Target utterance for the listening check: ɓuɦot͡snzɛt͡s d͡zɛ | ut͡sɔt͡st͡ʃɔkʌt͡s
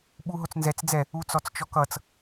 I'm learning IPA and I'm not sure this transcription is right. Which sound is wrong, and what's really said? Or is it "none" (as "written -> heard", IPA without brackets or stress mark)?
none